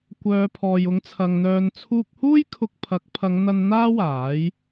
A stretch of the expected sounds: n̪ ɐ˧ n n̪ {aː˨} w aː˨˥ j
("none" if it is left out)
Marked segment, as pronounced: aː˥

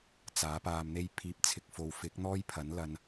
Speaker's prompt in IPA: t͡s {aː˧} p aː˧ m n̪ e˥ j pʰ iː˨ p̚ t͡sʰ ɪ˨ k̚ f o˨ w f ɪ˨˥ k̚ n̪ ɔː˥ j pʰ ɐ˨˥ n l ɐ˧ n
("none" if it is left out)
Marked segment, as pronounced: aː˨˥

